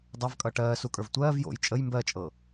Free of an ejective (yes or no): no